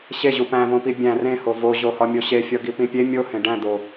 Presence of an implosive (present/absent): absent